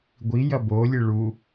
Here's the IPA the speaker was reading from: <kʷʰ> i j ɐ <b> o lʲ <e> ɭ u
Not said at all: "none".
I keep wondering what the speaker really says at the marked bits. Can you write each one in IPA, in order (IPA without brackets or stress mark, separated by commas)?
ɡʷ, b, ɨ